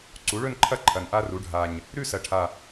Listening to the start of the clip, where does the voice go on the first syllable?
rising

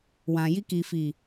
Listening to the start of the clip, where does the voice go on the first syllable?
low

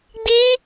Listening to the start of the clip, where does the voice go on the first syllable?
high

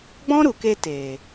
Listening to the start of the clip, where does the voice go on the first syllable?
high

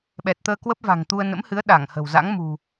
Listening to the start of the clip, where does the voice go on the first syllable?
low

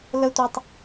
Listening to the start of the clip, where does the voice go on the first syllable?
high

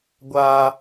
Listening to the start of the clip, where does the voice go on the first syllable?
high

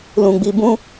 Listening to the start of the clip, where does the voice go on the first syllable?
low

